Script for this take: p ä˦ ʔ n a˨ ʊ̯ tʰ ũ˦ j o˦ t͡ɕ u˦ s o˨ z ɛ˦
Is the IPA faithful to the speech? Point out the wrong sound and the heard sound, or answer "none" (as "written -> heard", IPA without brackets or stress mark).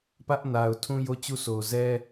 none